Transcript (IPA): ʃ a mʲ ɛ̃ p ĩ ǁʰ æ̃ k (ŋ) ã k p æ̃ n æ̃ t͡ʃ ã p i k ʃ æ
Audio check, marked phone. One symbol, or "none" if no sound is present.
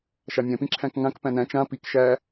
ŋ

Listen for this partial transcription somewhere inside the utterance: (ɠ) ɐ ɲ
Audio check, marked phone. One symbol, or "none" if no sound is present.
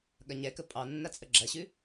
ɠ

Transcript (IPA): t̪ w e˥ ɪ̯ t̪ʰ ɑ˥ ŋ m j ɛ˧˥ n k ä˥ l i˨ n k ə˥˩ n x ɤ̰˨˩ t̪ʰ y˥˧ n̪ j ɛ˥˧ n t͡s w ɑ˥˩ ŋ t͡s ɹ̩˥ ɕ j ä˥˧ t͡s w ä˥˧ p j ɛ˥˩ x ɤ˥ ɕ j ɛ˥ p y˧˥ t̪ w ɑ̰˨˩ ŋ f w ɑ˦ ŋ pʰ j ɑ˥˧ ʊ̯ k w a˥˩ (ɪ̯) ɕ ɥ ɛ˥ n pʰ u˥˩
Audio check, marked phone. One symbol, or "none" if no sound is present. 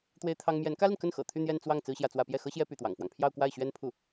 ɪ̯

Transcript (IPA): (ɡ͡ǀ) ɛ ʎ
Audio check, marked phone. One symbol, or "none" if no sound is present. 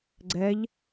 ɡ͡ǀ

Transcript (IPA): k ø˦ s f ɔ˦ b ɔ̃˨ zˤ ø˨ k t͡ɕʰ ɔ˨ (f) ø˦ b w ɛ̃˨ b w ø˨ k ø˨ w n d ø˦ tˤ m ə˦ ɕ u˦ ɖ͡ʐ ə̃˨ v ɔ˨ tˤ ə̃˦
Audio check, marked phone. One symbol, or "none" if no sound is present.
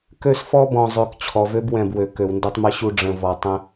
v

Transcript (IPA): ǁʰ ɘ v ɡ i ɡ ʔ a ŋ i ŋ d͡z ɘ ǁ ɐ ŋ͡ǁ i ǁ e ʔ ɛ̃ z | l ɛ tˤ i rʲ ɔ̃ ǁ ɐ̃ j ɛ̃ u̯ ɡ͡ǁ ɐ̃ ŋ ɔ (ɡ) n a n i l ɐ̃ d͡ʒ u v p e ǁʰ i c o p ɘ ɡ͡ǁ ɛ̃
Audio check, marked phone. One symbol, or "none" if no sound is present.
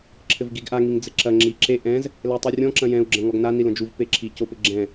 ɡ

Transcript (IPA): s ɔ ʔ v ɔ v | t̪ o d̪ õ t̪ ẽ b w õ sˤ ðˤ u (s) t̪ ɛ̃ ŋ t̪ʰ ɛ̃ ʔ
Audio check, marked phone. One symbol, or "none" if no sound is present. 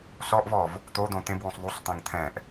sˤ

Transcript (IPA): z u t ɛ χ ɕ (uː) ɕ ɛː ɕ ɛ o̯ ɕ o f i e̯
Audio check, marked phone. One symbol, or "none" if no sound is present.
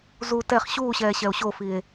uː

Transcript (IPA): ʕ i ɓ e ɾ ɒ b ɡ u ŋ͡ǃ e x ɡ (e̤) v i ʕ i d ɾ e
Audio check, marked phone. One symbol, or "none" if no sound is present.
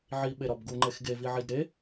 e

